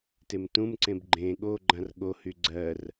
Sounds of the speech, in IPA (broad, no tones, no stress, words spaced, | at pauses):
temtũmǀẽb ɡ͡ǃẽ ɠo ɡ͡ǃãrɠohy ɡ͡ǀɜr